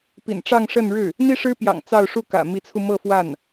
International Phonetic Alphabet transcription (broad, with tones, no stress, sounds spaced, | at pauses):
p ḭ˨˩ n ʈ͡ʂ ɑ˥˧ ŋ ʂ ə˥˧ n ɻ ɻ̩˥˩ | n̪ i˥ ʂ ɻ̩˥ p j ɑ̰˨˩ ŋ t͡s ɑ˥˧ ʊ̯ ʂ u˥˩ k ä̰˨˩ m i˧˥ t͡sʰ u˧ m ɤ˥˧ f w a˥˩ n